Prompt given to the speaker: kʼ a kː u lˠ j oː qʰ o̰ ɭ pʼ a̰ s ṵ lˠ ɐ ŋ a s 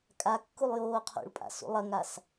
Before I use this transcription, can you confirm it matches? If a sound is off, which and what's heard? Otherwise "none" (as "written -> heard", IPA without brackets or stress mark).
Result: none